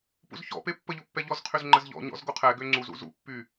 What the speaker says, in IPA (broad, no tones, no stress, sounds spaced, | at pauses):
p ṵ z ç ɔ̰ p e pː ə ʎ o pː ɛ ʎ ɔ z qʰ y z ŋ͡ǃ ə z ʎ ɔ̰ ɲ ɔ̰ z ɡ o qʰ ɛ ɡ ø ŋ͡ǀ u z ṵ z ṵ pː y